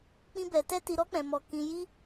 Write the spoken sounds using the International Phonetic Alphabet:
k͡p ĩ˦ b ɛ˧ t ɛ˦ t i˧ ɾ ɔ˦ k͡p ɛ̃˧ m ɔ˧ k ĩ˧ j i˦

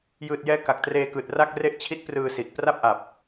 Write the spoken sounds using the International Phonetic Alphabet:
j ɯː˨˩ t̚ j ɛː˧ k a˨˩ k̚ t r eː˧ k ɯː˨˩ t̚ r a˥˩ k̚ r e˦˥ ʔ t͡ɕʰ i˦˥ t̚ p r ɯː˧ s i˨˩ ʔ p r a˥˩ p̚ ʔ a˨˩ p̚

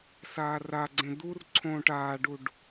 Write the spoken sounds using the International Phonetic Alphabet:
s aː r a ɡ͡ǀ ẽ d̪ u r ǀʰ õː ʈ aː ɖ u ɖ

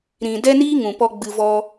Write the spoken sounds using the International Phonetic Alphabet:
ɾ ĩ˨ d ɛ˦ n iː˦ ŋ ũ˨ p ɔ˦ ɡ͡b ɨ˧ v ɔ˦

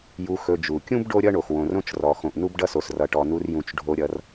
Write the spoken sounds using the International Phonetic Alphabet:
j u˨ x ɵ˨ d͡ʒ u˩ kʲ ũ˥ b ɖ o˥ ɾʲ ʌ˥ ɳ o˩ x w õ˩ r õ˦ t͡ʃ r ɔ˩ x õ˩ ʔ n u˦ b ɖ ʌ˦ s o˩ s r ʌ˩ ʈ ɔ˩ n u˨ r j ũ˩ t͡ʃ ɖʱ o˨ ɾʲ ʌ˨ r

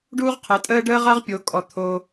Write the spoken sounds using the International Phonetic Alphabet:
ɖ uː˦ ʁ qʰ əː˨˦ tʼ əː˦ ɖ əː˦ ʁ a˦ ʁ pʲ o˨˦ kʼ ɔ˧ t̪ʰ o˦

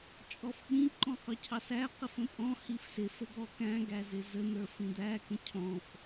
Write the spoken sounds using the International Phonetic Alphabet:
t͡ʃʼ ɔ f ɓ ĩ ǃ ɔ̃ q ʊ cʰ ɑ s æ q ɪ f ə̃ pʼ ɔ̃ h i f s ɪ f ə ɡ ɔ k æ̃ ɡ æ z ɪ z ə n̪ ə˞ f ĩ d̪ æ k ə̃ cʰ ɔ̃ f

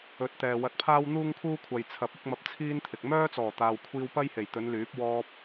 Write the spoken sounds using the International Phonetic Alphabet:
ɵ˨˥ t̚ t̪ ɛː˨ w ɐ˧ t̚ pʰ aː˥ w n̪ uː˥ ŋ kʰ uː˥ kʷʰ ɐ˨ j t͡sʰ ɐ˨˥ p̚ ɐ˥ k̚ m ɐ˧ p̚ t͡sʰ iː˥ n t̪ʰ ɪ˨ k̚ m œː˥ t͡s ɔː˨˩ t̪ aː˨ w kʷʰ iː˧ w p ɐ˥ j h e˨˩ j t̪ ɵ˨˧ n l yː˨˥ p̚ w ɔː˧ p̚

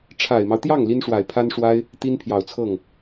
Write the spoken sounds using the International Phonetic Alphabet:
ʈ͡ʂʰ a˨˩ ɪ̯ m ɑ˦ ʊ̯ t̪ j ɑ˥˩ ŋ l i˥ n ʂ w a˨˩ ɪ̯ pʰ a˥ n ʂ w a˥ ɪ̯ | t̪ i˥ n pʰ j ɑ˨˩ ʊ̯ t͡sʰ ɤ˥˩ ŋ

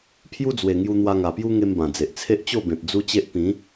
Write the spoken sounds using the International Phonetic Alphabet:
pʰ j u˦ d͡z w e˨˩ ŋ j u˧ n̪ w a˧ ŋ a˨˩ p j u˦ ŋ e˦ m b ã˨˩ d͡z e˨ ʔ t͡sʰ e˦ ʔ t͡ɕ o˥˧ b ẽ˨ p̚ d͡z u˦ t͡ɕ e˦ ʔ p ĩ˨˦

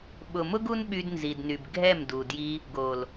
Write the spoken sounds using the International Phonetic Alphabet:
ɓ ʊ˨ m ʊ˦ ɡ u˦ n ɓ y˧ d n z i˨ d n y˨ b ɡʱ ɛ˦˨ m d u˨ d j i˧ | ɡ o˨ l

